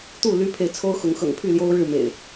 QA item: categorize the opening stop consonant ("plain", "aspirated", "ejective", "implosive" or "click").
plain